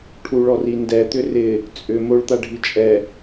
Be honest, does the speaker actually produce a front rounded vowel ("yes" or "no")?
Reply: yes